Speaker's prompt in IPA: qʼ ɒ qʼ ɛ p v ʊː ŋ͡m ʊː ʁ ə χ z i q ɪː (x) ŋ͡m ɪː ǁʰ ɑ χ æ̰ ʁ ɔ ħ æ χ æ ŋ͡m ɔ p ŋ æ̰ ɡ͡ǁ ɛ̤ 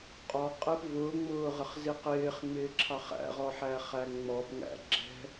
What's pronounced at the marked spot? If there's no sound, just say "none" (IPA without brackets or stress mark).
χ